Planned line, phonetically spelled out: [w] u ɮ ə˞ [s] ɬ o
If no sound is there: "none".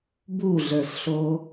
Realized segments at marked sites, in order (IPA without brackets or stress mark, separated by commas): b, s